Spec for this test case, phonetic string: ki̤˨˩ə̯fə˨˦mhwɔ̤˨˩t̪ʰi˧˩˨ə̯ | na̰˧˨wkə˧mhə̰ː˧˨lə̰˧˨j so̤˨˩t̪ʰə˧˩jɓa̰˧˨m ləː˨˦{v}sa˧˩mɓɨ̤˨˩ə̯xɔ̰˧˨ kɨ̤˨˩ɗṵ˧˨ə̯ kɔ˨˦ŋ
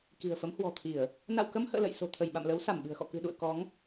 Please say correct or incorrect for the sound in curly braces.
incorrect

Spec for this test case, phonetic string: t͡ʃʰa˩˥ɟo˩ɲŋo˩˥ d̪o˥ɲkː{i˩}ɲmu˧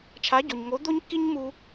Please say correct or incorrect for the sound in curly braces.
incorrect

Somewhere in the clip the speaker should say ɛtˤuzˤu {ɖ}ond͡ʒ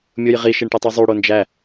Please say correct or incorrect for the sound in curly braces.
incorrect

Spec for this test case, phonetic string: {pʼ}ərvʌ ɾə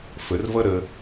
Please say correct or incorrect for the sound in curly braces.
incorrect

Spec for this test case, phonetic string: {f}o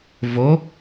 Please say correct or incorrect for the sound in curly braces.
incorrect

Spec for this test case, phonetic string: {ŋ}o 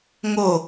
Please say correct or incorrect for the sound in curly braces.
correct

